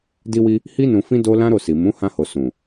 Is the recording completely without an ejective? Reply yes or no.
yes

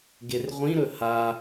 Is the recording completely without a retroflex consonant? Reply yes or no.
yes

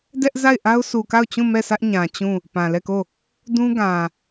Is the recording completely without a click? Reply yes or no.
yes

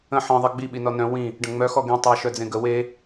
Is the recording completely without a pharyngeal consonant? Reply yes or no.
no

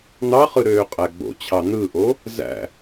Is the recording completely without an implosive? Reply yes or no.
yes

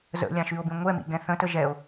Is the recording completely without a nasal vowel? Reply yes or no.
no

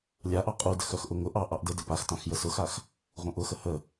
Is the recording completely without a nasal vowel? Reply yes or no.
no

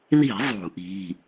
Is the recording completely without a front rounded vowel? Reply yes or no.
yes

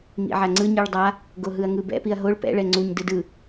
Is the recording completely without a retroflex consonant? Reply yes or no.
no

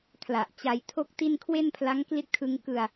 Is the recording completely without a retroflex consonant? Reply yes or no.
yes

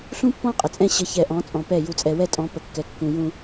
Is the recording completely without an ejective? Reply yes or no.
no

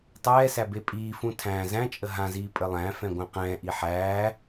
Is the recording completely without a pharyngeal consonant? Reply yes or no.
no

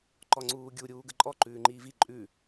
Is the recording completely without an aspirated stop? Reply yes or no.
yes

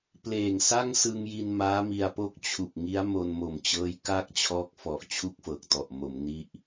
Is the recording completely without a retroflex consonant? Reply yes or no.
yes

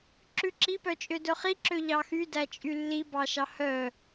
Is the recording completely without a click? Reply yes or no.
no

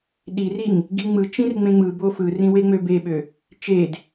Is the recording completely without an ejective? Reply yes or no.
yes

